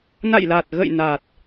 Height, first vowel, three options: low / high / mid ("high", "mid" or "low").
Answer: low